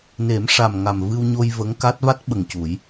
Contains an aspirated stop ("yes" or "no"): no